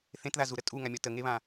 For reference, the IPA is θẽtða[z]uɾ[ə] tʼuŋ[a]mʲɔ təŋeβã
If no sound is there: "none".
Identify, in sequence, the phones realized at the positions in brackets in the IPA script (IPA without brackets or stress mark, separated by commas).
z, ə, a